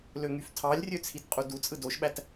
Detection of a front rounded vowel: present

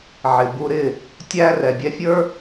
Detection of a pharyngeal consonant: present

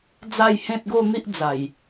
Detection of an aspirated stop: absent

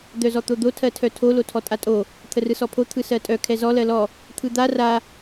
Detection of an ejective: present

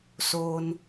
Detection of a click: absent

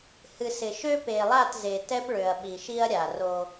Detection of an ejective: absent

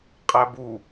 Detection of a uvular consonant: present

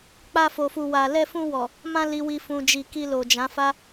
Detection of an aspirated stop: absent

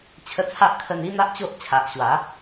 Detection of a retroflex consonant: absent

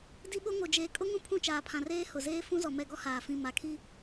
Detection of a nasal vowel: present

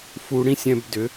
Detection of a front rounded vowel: present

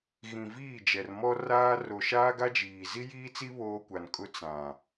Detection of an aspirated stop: absent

